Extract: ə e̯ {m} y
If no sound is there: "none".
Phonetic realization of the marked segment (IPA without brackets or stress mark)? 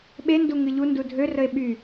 ɓ